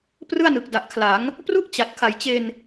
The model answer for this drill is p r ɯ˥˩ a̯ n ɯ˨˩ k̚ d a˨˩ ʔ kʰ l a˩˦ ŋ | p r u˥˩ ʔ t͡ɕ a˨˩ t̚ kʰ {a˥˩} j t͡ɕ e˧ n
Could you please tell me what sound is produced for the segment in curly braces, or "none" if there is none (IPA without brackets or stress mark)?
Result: a˨˩